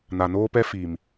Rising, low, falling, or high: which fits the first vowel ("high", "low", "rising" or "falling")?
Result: low